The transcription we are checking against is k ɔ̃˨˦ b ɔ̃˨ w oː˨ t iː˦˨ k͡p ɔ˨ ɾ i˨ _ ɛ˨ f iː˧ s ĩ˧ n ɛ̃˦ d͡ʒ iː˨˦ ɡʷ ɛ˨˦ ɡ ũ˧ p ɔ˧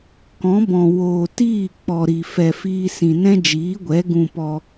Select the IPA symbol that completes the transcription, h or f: f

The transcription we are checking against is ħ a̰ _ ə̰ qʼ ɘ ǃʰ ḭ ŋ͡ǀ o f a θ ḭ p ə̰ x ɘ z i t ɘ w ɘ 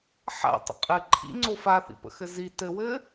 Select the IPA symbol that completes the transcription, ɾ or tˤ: tˤ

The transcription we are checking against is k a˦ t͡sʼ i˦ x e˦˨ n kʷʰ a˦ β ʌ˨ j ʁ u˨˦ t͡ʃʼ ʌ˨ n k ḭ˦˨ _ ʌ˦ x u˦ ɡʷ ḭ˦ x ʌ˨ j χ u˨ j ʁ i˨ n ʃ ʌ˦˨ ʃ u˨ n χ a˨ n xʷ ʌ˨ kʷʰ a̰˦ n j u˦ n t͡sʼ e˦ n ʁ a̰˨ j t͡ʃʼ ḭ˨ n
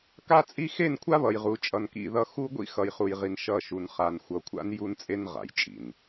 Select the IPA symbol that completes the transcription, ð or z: ð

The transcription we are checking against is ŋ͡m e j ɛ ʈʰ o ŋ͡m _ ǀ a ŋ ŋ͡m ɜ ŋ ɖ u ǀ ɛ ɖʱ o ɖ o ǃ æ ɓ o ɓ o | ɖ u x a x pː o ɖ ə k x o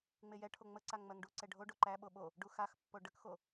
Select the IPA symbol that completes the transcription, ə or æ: ə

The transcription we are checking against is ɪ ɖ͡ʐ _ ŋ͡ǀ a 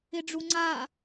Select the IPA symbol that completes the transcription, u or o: u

